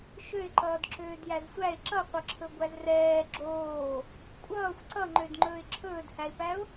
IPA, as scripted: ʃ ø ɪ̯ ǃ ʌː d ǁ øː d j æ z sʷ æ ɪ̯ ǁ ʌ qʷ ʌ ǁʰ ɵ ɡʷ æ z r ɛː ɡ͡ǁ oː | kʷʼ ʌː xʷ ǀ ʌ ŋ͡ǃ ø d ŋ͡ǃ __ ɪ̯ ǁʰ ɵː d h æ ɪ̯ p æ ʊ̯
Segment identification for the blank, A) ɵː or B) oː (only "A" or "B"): A